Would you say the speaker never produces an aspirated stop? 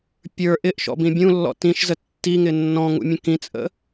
yes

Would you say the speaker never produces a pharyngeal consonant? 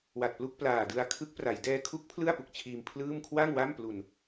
yes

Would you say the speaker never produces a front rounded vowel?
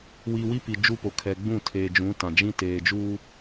yes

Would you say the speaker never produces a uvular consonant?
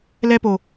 yes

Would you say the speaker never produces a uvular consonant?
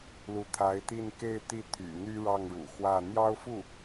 yes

